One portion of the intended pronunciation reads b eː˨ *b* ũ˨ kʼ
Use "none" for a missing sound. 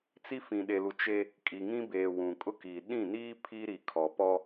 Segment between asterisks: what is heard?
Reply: w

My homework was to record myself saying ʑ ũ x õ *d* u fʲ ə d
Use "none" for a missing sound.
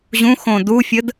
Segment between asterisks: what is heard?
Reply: d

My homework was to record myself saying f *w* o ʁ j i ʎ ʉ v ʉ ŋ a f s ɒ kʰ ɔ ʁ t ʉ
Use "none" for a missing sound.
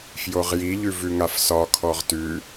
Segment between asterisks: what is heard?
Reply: j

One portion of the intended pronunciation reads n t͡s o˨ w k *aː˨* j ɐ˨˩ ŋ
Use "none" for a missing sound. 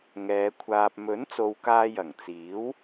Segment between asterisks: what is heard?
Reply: aː˧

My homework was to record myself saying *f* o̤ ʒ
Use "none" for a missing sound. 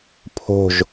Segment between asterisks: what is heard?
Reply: pʰ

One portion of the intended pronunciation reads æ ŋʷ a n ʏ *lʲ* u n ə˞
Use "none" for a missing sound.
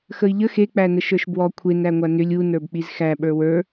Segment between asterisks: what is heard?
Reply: lʲ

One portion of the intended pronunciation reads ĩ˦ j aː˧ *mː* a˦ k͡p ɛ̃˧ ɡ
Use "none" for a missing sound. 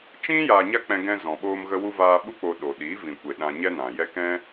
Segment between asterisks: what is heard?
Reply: ɲ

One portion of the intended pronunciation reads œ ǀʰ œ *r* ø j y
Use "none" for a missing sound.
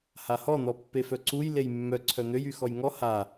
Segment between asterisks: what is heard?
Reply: n̪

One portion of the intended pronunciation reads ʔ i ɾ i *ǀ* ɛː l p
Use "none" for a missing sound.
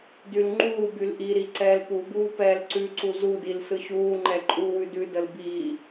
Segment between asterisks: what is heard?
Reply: ǀ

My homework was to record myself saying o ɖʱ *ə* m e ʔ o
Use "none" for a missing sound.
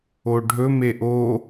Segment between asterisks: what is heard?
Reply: ɵ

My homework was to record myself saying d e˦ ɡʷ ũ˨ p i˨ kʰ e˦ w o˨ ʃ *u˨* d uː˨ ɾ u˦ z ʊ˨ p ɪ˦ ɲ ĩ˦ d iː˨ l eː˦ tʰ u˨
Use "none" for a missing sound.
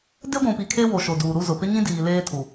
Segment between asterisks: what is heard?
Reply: o˨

